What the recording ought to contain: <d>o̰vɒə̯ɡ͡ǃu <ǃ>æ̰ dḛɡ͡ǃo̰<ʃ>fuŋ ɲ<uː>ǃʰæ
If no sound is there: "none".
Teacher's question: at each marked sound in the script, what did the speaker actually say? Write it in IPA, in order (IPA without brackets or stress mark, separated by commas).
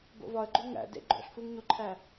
b, ŋ, ɬ, u